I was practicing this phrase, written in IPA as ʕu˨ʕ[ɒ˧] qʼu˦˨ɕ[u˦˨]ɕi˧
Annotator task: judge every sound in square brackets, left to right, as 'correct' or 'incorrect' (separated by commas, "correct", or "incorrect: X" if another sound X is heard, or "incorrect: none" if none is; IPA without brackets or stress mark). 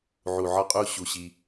correct, incorrect: u˧